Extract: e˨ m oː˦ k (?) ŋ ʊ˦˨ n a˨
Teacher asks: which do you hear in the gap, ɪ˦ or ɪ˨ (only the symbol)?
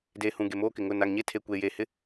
ɪ˨